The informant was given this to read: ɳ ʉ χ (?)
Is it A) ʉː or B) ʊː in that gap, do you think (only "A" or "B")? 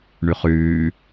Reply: A